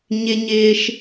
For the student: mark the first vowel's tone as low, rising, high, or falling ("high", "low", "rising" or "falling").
high